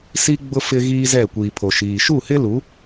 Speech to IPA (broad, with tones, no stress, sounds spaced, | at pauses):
s i˦ ɡ͡b ʊ˦ f ɪ˦ ɣ iː˦ z ɛ˦˨ kʷ iː˨ pʰ o˨ ʃ iː˨ ʃ u˦˨ h ɪ˦ l u˨˦